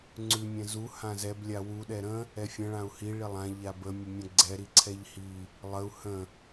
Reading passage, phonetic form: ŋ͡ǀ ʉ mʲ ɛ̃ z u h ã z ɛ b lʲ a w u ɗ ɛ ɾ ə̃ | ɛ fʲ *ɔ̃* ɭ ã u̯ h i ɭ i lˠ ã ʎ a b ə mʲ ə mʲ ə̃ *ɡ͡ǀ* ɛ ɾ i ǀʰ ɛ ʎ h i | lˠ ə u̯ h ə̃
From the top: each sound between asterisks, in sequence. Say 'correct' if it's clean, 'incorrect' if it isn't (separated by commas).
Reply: incorrect, correct